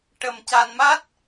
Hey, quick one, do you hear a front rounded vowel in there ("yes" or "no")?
no